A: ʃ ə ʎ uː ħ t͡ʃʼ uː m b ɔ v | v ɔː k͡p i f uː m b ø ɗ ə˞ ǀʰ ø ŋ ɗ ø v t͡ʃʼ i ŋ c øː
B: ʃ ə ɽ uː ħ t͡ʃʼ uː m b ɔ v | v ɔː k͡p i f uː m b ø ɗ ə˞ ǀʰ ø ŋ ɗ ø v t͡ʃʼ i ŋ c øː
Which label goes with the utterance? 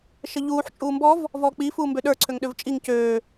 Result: A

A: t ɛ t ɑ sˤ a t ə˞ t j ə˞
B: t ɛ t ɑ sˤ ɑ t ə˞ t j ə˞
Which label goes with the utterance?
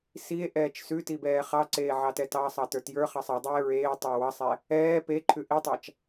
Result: B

